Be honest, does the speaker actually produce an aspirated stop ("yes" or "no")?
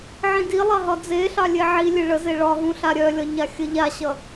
no